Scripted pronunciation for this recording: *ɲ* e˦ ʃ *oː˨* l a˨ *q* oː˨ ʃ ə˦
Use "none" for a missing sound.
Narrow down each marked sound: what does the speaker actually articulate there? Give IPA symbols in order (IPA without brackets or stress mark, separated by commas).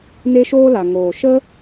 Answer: n, oː˦, ŋ